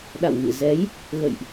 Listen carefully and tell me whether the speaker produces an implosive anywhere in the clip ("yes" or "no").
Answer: yes